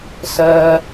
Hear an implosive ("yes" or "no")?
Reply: no